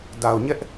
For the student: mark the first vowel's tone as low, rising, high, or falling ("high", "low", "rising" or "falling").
low